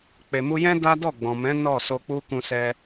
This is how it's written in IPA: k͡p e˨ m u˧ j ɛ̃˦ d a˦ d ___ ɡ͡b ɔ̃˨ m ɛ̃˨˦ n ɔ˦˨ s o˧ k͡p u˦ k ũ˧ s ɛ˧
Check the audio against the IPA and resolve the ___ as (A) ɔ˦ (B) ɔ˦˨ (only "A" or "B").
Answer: B